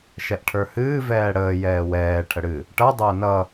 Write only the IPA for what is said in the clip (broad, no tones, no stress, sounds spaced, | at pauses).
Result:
ʃ ɛ ʔ ʈʰ ə˞ h ɨː v ɛː ɽ əː j ɛː w ɛː ʈʰ ə ɽ ɨ | ʈ ʌ dˤ əː n ʌ